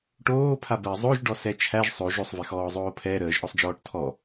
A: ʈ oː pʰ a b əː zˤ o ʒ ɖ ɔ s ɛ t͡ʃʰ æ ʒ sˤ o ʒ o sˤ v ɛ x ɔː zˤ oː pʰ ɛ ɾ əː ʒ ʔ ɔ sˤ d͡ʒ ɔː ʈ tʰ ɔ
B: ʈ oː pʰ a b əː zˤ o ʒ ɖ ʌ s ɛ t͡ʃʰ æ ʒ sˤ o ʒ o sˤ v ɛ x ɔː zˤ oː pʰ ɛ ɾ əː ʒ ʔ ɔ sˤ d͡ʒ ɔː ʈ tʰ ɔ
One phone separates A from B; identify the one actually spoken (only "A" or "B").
A